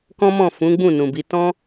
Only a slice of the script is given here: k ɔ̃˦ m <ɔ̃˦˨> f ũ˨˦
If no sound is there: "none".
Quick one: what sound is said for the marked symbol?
ɔ̃˦˨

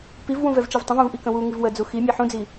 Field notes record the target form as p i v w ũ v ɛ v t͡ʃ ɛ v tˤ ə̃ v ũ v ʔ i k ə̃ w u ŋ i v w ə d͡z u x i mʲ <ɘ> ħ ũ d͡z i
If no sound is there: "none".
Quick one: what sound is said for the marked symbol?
ɛ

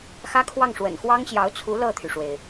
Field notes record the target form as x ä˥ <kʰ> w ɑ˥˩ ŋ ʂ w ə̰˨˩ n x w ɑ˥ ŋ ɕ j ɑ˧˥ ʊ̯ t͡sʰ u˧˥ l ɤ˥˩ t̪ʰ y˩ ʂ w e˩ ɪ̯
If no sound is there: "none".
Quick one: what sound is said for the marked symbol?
kʰ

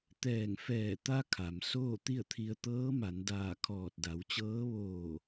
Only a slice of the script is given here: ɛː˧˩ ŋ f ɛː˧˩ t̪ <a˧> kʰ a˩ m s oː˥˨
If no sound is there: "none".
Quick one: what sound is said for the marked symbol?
a˧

